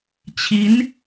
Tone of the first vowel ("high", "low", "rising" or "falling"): rising